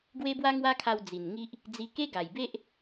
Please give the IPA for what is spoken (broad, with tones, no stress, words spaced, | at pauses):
ɡwe˦bwa˦ŋwa˦kʰa˧w d͡zi˨˩n ŋi˦ʔ | d͡zi˧ke˦ɡa˨˩jbe˦ʔ